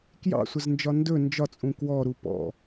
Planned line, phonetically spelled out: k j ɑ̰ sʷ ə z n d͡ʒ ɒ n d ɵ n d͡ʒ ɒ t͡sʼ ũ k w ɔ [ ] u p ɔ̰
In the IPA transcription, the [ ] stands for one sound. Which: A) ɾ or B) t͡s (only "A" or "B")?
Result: A